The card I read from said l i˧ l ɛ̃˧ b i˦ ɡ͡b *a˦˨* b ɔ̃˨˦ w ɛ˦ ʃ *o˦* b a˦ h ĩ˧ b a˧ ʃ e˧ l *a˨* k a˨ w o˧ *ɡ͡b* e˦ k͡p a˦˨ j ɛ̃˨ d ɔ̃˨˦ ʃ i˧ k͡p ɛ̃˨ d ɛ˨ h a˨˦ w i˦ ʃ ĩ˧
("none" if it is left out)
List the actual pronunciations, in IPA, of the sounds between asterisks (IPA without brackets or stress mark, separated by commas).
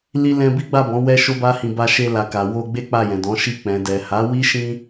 a˦˨, o˦, a˨, ɡ͡b